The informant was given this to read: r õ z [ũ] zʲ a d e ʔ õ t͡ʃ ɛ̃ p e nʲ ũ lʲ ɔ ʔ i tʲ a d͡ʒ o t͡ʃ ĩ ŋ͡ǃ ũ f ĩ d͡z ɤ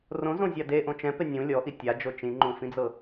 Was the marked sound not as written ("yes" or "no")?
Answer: yes